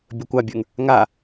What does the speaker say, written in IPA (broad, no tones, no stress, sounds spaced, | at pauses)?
bʲ ɵ kʷ a bʲ ə˞ ŋ | ŋ a